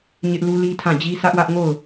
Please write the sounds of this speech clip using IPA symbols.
ɲɪ˦ʔlu˦ li˦tʰã˦˨d͡ʑi˦ sʰä˦ʔwä˦ʔŋo˦˨ʊ̯

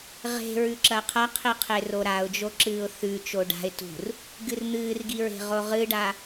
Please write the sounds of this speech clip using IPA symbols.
ʁe̤ɹʉ ǁɐqʰɐqʰiqʰe roɾaʊ̯d͡ʒoǁɨːʊ̯ θʉ t͡ʃoɖa̤ɪ̯ tṳr | ɡɨrn̪ɨːrɡiɹe̤ ʁoʁɨɖa

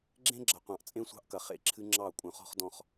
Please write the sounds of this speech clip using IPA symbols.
ɡ͡ǁẽ˦ ɡ͡ǁɐ˨qʷɑ̃˨ʔt͡sʼẽ˦sʷɑ̤˦ʔ kɐ˨χḛ˦˨ǁʰɨ˦ ŋ͡ǁɑ˦˨ kʷʼœ̃˨χɔ̤˦χdɔ̃˦˨χ

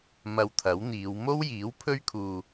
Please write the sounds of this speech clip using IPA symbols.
mɐ˧wt̪ʰɐ˨˥wn̪iː˨˧w mo˥wjiː˨˥wpʰɵ˥ɥkʰuː˧

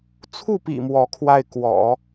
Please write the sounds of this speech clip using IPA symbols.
t͡sʰu˥˩pḭ˨˩ mwɔ˧˥kʰwa˥˩ɪ̯ kwɔ̰˨˩˦

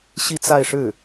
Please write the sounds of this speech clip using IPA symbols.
ɕi˥˧t͡sa˥˧ɪ̯ʂɻ̩˥˩

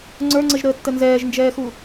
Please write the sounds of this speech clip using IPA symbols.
ŋ͡ǀə˞ŋ͡ǀəʒɾəːtːə nzɛːʒnd͡ʒɛːxu

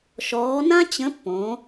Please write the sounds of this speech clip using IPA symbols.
ʃɔː˧˥ nã˥ t͡ɕə̃˧˥pːõ˩˧

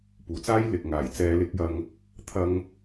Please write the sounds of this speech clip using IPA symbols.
puː˨t͡saː˥j lɪ˨k̚ŋaː˨˩j t͡sɛː˨˧lɪ˨˥k̚jɐ˧ŋ | t̪ʰɐ˧ŋ

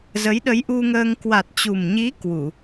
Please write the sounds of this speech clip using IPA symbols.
zə˨˦jɗə˨˦j ʔu˧ŋəː˧ŋ kwa˨˩t̚t͡ɕu˨˩mɲi˨˦ kwu˧˩˨

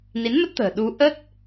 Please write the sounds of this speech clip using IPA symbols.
ni˨˦nmə˦˥t̚t̪ə̤ː˨˩ ɗu˨˦ʔə˦˥t̚

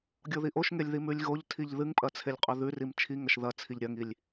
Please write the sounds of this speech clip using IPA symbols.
ɡʲoðiʔoʃŋelʲ ðimʉlʲɣoʎtʰiʎ ðɨŋpʼɐ t͡sʰelʲqʼɵðʉrim t͡ʃʰi ŋɐʃðɐt͡sʰiʎ ɾʲɐŋilʲ

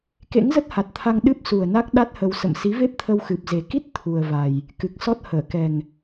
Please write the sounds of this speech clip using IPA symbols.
kḛ˧˥ŋzə˦˥t̚ha˨˩t̚t̪ʰa˧ŋ ɗɨ˦˥p̚su˨˩ə̯ na˦˥k̚ ɗa˦˥t̚hə˧w sə̰˧˨m si˨˦ve˦˥p̚t̪ʰə˧w xɨ˨˩p̚ze˨˩ ki˦˥t̚ t̪ʰu˨˩ə̯va˨˩j | kɨ˨˩k̚sɔ˦˥t̚ həː˧˩kɛ˨˩ŋ

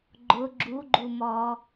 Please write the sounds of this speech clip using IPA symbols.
ɡ͡ǃʊ ɡ͡ǁuɡ͡ǃumɔː

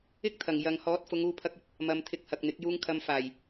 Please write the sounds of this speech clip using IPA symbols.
ɪ˥k̚t̪ʰɐ˨˩ŋ jɐ˨˧ŋ hɔː˨˥t̚fʊ˨˧ŋ uː˧pʰɐ˧k̚ɵ˥t̚ | mɐ˧m t̪ʰɪ˧k̚hɐ˨k̚n̪ɪ˨˥k̚ juː˧ŋ kʰɐ˧mfaː˨˩j

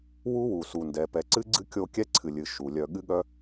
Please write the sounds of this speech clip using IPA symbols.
wu˦wu˨su˨ndɛ˨ pɛ˨ǀɨ˦ɡ͡ǀɨ˦ kʲo˦ kʲɛ˦ǀʰɨ˨lʲɨ˨ ʃu˨ lʲœ˨ɠɨ˦ɠœ˦

